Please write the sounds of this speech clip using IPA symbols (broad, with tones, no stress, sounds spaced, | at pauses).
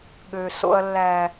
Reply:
ɠ ø˨ s o̰˦ ɐ̯ lː æ˦